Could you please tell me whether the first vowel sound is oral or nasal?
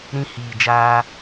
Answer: nasal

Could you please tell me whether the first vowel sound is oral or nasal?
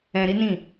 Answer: nasal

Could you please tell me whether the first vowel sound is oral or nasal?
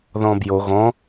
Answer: nasal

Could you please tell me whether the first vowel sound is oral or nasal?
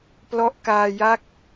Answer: oral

